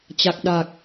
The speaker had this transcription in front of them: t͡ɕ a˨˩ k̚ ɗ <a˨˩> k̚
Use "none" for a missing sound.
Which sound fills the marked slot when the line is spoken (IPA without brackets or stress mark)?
aː˨˩